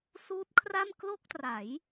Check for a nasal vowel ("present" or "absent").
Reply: absent